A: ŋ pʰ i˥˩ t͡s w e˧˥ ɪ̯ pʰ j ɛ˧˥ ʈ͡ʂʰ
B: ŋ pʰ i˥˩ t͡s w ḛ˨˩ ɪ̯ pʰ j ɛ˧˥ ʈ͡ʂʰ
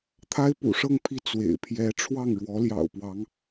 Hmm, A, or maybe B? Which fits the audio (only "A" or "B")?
B